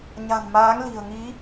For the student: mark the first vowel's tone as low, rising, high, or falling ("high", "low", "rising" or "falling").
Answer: low